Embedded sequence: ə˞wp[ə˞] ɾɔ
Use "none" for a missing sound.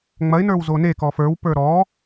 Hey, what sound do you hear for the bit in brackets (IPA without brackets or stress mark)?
ə˞